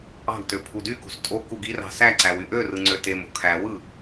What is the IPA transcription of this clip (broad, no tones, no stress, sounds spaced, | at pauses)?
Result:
ɑ̤ ɡ t ø pʰ u d y k ṳ s tʼ o k u ɡ i r ɑ̤ s æ ǀ æ w y ʔ ø r ɯ ŋ͡ǀ ø t e m o̤ kʰ æ w ɯ